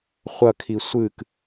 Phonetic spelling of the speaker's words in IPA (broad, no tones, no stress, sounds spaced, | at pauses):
χʷ ɐ kʰ i sʷ ɨ k